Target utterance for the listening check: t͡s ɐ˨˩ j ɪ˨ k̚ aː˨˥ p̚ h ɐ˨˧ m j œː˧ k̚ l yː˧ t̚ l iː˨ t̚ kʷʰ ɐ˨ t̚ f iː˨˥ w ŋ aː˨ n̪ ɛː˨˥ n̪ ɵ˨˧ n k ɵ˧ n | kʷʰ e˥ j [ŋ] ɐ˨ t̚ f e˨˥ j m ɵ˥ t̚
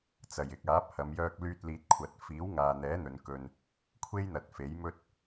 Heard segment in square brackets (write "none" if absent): n̪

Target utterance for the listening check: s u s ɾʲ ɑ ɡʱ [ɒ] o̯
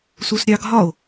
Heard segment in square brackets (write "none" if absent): ɒ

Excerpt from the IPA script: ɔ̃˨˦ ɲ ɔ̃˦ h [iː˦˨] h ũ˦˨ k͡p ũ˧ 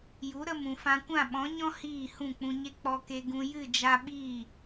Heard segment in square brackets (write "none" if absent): iː˦˨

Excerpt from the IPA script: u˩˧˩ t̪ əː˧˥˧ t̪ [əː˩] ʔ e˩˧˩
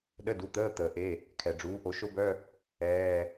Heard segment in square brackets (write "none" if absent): əː˩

